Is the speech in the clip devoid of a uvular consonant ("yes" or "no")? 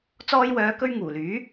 yes